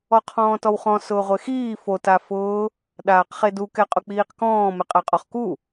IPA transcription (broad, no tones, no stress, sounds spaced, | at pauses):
ɔ qʰ ɔ̃ː t ɔ w χ ɔ̃ s ʊː ʁʷ e x iː f o t a f ʊː | ɗ aː q χ e d u k ɛ qʼ ʊ k͡p iː q k ɔ̃ː m ɪ qʼ a qʼ ɔ χ k u